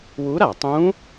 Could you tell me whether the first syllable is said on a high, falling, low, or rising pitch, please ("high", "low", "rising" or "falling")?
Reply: rising